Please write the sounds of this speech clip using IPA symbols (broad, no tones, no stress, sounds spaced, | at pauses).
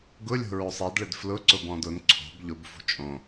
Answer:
ɡ ʊ lʲ o̤ ɹ o sˤ e d ɭ ɪ d f l ʊ ǀ ʊ b ɔ̃ d ʊ n ǀʰ o̤ b ʎ ʊ b f ṳ t͡ʃʼ õ